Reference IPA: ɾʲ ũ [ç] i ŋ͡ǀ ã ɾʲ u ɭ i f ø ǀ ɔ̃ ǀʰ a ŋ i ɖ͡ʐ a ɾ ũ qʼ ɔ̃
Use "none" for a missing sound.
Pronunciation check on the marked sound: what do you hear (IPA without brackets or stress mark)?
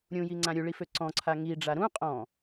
j